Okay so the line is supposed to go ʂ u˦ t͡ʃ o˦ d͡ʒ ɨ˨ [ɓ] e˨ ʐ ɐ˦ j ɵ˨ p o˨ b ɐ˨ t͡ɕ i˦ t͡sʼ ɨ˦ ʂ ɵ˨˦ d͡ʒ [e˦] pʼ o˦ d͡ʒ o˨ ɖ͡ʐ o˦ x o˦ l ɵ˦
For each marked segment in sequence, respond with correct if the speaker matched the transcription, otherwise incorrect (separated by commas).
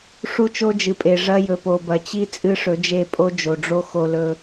incorrect, incorrect